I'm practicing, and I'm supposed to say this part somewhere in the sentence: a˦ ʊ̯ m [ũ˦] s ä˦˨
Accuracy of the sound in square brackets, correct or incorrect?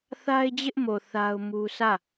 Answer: incorrect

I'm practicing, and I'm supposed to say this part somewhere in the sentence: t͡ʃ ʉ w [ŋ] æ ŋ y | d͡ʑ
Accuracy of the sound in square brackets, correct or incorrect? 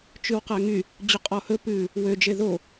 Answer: incorrect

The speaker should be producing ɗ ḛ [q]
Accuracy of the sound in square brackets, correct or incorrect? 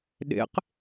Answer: correct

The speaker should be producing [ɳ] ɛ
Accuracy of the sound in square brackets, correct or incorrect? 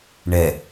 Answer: correct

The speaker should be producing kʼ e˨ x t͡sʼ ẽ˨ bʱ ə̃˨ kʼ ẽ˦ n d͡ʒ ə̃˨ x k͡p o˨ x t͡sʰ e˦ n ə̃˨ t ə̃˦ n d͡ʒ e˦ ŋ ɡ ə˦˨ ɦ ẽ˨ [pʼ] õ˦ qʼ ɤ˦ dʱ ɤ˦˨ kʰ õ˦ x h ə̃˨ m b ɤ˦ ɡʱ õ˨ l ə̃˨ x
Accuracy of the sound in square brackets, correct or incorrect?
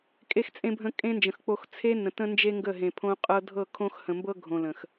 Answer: incorrect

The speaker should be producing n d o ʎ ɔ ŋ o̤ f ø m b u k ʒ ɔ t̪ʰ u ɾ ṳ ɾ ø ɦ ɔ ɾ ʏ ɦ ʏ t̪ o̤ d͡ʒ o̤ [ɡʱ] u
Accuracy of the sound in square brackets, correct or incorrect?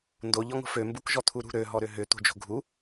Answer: correct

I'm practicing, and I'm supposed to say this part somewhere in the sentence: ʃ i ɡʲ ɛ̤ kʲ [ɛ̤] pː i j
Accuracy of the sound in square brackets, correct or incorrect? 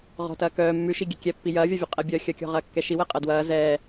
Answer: incorrect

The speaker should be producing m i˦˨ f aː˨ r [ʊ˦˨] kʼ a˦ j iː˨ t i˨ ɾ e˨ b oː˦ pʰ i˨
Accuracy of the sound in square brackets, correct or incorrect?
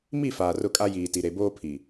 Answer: correct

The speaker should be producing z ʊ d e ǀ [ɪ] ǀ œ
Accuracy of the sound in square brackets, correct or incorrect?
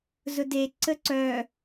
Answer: incorrect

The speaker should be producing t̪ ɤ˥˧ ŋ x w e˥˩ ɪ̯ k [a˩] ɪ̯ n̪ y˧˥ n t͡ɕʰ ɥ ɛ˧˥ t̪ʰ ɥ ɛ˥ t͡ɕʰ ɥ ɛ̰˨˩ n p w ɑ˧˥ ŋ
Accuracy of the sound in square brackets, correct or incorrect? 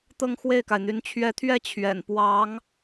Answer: correct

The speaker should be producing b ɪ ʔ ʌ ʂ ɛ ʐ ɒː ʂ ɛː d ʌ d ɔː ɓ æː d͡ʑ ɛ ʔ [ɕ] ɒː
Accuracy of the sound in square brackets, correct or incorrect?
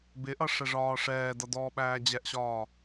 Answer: correct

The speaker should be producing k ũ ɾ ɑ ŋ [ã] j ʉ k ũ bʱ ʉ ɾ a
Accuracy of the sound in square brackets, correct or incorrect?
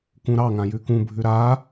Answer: correct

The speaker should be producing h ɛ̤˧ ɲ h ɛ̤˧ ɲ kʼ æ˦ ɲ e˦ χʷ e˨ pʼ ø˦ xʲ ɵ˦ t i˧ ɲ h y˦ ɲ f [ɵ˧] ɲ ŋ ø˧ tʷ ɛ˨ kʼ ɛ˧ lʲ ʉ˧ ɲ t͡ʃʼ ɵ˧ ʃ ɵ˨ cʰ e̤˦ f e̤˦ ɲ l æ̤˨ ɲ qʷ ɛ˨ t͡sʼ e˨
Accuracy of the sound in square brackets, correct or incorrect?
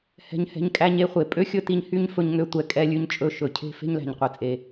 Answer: correct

